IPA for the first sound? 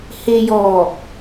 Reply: h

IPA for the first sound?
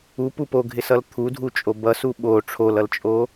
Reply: u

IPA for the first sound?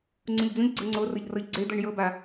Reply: ŋ͡ǀ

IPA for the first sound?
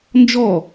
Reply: n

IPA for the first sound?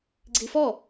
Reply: ɡ͡ǀ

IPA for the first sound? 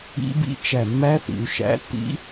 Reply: ḭ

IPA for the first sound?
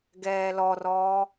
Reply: ɡ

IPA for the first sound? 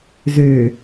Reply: z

